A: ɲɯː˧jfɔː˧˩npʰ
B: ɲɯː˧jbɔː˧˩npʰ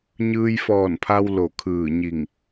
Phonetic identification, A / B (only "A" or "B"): A